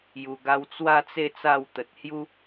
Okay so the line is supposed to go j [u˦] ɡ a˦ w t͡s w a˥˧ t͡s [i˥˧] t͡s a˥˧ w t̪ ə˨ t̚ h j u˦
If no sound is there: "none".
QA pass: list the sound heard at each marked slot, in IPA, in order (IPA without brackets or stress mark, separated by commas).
u˧, e˥˧